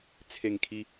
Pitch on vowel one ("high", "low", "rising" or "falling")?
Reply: falling